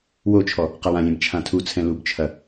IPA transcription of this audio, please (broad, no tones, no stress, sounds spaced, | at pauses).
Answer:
w o t͡ʃʰ ɔ | q a w ã lʲ ɛ̃ b t͡ʃʰ ã tʰ u t͡sʰ ɛ̃ l u b t͡ʃʰ ɐ